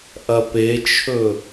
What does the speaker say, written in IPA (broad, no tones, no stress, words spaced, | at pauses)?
ʔɐpet͡ʃʰɵ